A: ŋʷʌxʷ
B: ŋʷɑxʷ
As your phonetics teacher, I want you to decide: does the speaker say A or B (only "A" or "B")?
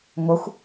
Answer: A